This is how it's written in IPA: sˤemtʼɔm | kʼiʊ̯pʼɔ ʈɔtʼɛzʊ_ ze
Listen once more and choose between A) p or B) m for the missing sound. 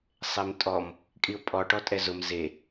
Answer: B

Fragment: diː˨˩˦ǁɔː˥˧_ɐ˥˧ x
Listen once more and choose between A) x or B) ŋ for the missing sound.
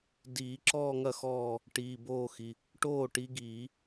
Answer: B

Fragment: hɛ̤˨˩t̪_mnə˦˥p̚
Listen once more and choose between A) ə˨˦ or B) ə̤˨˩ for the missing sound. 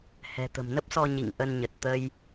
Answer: B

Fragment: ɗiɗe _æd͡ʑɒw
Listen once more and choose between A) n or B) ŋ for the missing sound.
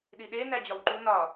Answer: A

